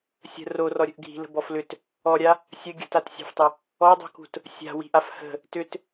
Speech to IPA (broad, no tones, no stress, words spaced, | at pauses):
sʲə̤ rorɔɾʲə̤ʔ ɡʱi̤lə̤bɔf lʏt | ɔɾʲa | sʲə ɡʲə̤tatsʲa̤ftˤə | ɔdˤṳkṳt | sʲa̤wi̤ʔaf hə̤ | tʏt